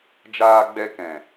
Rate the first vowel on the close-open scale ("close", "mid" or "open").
open